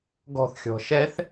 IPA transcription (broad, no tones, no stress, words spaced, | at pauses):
ɡɔ̤θxʲɔ̤ ʃɛθ